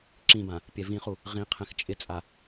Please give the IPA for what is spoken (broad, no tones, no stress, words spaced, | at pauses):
ǁĩbã | pʲɛvĩχu | ʁĩ qʰɛ̃xt͡ʃʼɪt͡sʼa